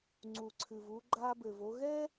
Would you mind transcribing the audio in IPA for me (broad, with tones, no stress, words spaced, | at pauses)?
ŋ͡ǀuː˨ǀʰɨː˨vuː˧ ɡ͡ǃaː˧bɘː˨v o˧ ɣɛ˦